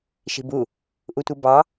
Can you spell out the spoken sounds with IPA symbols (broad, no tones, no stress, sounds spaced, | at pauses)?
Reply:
ʃ i̤ b u | ʔ u tʷ ɯ b ɑ